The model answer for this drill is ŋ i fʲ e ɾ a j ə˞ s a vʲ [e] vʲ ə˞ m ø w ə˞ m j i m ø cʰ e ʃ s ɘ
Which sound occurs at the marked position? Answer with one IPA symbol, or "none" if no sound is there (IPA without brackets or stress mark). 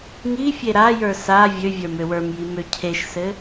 ø